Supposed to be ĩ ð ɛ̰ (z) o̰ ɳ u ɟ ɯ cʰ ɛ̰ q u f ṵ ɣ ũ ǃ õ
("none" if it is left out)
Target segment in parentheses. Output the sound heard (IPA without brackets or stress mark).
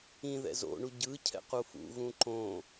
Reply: z